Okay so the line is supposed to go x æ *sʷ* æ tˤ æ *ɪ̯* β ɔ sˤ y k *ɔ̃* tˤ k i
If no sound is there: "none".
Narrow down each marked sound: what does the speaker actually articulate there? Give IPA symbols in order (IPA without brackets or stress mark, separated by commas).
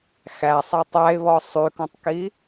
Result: sˤ, ɪ̯, ɔ̃